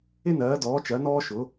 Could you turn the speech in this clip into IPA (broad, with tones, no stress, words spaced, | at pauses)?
ɪ˥nɜː˨˥dɔː˨˥t͡ʃɜ˨˥ nɔː˥ʃʊ˨˥